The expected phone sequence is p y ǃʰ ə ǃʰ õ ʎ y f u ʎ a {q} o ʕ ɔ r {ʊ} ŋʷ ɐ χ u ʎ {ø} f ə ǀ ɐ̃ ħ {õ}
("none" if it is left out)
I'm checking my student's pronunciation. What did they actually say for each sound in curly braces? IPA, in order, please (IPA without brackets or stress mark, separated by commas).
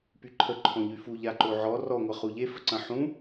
ǃ, ɔ, e, ũ